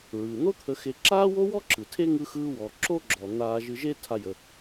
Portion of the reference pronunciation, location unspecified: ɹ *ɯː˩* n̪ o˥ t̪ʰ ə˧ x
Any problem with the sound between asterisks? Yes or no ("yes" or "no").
no